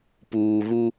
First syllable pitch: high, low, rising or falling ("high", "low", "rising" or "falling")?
low